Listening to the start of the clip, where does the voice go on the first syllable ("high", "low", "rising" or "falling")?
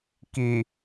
low